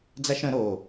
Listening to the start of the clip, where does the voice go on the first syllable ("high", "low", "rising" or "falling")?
high